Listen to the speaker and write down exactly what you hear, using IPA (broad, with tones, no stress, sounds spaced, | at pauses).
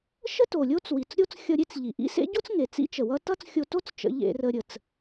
ʃ ə˥ t o˩ lʲ o˥ t͡s w i˩ t͡s ɾʲ o˥ t͡s xʲ ʌ˧ ɾʲ e˥ t͡s ʎ i˩ ʔ ḭ˥ s ḛ˥ ɟ o˥ t͡s ŋ e˩ t͡s ḭ˥ t͡ʃ ə˩ w ʌ˥ t ʌ˥ t͡s xʲ o˧ t o˥ t͡s t͡ʃ ə̰˧ ʎ ḛ˧ r ə˧ ɾʲ ə˩ t͡s